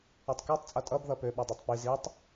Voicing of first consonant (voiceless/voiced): voiceless